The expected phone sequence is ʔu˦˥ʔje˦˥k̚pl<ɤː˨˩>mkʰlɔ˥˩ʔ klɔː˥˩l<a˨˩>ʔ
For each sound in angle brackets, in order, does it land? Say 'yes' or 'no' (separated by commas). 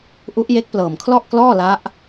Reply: yes, no